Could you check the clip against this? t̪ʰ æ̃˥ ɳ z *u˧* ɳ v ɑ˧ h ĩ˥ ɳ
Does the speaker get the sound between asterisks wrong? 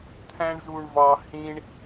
no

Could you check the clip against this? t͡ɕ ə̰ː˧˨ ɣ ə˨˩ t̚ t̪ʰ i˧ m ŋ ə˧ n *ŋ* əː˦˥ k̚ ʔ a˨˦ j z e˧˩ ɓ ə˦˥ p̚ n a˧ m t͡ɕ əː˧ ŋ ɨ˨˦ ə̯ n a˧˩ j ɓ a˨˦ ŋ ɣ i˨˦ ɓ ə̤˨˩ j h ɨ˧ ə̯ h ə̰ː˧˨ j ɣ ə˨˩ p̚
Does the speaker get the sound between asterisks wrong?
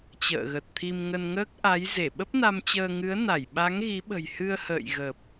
no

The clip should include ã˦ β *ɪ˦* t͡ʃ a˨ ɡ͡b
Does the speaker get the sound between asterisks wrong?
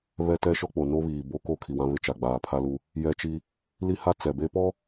no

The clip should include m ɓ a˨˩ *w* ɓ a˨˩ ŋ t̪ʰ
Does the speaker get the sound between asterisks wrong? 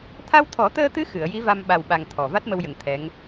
no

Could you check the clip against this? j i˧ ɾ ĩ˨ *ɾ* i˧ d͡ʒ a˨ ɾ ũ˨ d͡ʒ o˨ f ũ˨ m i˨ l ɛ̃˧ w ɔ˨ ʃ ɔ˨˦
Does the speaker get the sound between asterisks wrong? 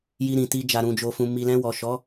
yes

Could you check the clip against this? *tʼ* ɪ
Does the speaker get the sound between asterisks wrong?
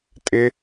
no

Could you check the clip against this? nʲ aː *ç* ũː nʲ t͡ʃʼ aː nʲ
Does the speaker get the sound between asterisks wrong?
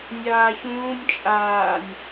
no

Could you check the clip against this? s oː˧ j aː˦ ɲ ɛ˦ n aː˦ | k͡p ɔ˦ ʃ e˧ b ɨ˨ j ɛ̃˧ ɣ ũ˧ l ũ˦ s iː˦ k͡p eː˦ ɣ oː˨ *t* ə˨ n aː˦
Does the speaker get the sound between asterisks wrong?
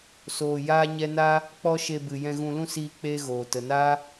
no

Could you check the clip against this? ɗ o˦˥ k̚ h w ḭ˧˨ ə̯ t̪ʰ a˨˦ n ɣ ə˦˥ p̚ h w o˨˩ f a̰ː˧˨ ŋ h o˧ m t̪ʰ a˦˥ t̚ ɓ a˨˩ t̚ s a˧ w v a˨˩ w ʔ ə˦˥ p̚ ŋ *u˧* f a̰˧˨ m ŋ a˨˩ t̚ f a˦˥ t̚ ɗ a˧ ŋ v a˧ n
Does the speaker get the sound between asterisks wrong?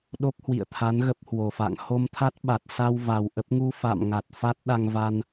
no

